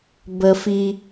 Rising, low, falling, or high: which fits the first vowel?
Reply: high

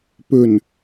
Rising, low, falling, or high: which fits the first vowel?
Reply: low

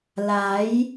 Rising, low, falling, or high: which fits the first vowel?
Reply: rising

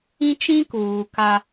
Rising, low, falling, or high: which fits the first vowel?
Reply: high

